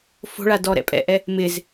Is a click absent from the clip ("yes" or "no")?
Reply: yes